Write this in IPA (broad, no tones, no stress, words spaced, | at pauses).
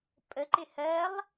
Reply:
pʼəǃɪ hɜlˠ